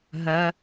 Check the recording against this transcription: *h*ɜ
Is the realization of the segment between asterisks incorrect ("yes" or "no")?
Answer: yes